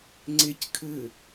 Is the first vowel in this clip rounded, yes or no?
no